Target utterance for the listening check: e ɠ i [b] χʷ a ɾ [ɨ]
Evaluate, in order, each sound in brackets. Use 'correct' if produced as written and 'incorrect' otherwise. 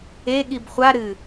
correct, correct

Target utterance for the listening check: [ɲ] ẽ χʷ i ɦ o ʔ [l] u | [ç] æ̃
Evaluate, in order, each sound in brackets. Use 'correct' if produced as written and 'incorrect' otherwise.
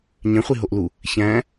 correct, correct, correct

